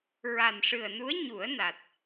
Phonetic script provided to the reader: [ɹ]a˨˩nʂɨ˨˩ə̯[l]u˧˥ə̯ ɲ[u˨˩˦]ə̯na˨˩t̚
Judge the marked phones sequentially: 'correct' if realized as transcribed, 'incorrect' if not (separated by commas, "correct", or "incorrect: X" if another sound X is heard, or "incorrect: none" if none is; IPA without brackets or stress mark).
correct, incorrect: n, correct